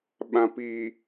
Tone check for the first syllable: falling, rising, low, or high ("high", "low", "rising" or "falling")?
low